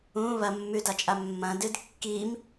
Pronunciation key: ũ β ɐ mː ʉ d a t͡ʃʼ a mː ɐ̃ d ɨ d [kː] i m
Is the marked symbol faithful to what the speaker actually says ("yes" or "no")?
yes